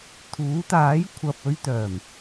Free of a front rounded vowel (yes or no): no